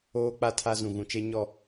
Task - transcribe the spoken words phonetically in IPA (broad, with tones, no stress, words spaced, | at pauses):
oː˦k͡pa˦ tʰa˦ zũ˨ ɣũ˨t͡ʃe˦ɲɔ˦˨